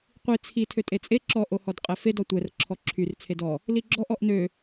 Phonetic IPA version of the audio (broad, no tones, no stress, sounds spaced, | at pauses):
qʷ i t͡sʰ i tʰ ø tʼ e t͡sʼ e ǁ ɔ ʔ o h ɔ d qʼ ɛ f e d ɔ tʷ ɛ r ǁʰ ɔ ǁʰ y r t͡sʰ e d ɔ | l i ɡ͡ǁ ɔ ʔ ɔ ʔ n ø